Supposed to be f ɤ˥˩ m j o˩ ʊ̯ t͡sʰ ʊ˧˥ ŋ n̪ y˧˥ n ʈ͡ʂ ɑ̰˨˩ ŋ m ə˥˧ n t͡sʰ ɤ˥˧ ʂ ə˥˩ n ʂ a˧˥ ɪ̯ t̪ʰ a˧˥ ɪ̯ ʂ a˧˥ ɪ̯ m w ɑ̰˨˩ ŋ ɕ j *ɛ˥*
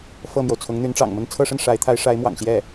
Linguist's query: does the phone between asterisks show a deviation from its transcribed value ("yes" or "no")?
yes